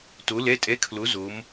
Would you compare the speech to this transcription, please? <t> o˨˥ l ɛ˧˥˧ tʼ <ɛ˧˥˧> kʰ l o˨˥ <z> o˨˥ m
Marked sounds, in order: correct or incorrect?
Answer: correct, correct, correct

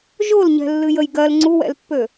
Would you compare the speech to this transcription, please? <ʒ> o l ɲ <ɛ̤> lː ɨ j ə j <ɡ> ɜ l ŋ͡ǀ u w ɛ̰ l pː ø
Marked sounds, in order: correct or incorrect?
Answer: correct, correct, correct

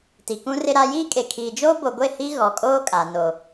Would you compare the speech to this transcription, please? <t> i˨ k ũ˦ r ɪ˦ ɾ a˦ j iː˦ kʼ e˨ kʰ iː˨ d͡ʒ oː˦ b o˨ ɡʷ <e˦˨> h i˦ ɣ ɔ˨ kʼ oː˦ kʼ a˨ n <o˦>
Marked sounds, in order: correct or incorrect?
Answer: correct, correct, incorrect: o˨

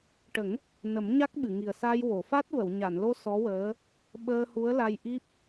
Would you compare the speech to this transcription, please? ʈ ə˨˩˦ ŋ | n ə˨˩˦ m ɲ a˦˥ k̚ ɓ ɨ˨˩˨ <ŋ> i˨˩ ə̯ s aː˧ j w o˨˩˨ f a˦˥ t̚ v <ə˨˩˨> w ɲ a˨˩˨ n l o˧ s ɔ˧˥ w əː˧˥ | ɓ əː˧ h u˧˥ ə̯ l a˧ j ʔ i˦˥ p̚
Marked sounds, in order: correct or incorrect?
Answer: correct, correct

